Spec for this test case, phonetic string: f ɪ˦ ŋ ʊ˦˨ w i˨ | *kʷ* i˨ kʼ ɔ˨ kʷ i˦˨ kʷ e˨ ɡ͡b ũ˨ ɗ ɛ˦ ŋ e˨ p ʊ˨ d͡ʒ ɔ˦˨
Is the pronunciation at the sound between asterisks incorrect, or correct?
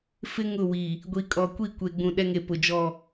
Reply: incorrect